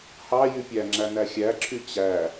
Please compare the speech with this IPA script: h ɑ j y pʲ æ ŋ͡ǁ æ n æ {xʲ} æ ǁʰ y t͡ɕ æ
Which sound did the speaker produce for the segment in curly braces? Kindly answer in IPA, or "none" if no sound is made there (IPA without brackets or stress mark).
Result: xʲ